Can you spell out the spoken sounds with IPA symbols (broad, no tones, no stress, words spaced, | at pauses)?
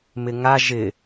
mɪŋa ʒɪ